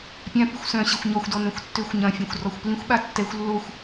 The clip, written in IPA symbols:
pʲãpixʷ sœ̃ɕɪxʷ ɲɔxʷdɔ nœ̃xʷtːøxʷɲɐ̃fʲœ̃xʷ rɔxʷplĩxʷɓa tːɛxʷ lːoxʷ

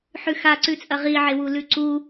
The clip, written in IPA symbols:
ħʉxaǀʉt͡sʼɐ ʁiʕewu lʉǀu

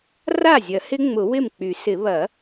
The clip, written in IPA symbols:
ra˥˩zʲɐ˨˩˦ hɪ˦˥ŋ͡mʊ˨˩˦wɪ˥˩m k͡py˨˩˦sɪ˨˩˦ βɐ˨˩˦

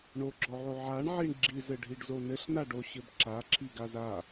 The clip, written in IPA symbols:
ɳoɡ͡ǁɔʕo ʕaɳʕiɳ ɡ͡ǁizɘɖʱiɖzo nɘɬnaɖoɕɘb ǁaǁʰiɡaz a

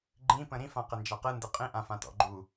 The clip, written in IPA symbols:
ɡ͡ǃĩpə̃ ɾĩfãqe nd͡ʒaqɯndɯ qʼĩʔãfã tɔ̰ɡ͡ǃu

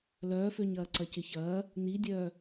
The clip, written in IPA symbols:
lœːføɲ ɐːǀɐcɪçɐː | n̪idʲœː

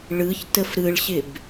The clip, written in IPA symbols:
ɭɯçtəf ɾɯɭɕɪb

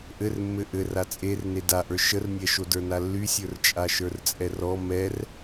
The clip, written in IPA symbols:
ʔɘrmːɘ ʔɘra t͡sʼer nedaʔə˞ ʃərnʲɛʃo də˞nalːysʲə˞r t͡ʃʼaʃə˞rt͡sʼɛrɔ mɛr

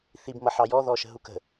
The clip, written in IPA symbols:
θib mʌħɑjɔ ðɔʃə̤ɦukə̤

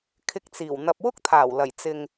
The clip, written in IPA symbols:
kʰɪ˧k̚t͡siː˨˩w n̪ɐ˨p̚wʊ˥k̚t̪ʰaː˨˩w lɐ˨˩jt͡sɪ˨ŋ

